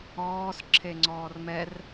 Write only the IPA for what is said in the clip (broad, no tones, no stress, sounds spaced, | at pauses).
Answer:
ɔː s ǁʰ e ŋ͡ǀ ɔː r m ɛ r